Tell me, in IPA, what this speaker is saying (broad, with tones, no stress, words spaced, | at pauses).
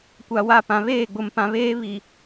kʷa˨wa˦˨pã˨ βeː˦˨ɡ͡bʊ˨mpã˨βeː˦ βi˨